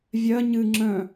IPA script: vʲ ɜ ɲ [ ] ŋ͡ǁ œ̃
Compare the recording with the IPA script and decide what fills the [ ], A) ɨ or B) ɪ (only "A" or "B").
A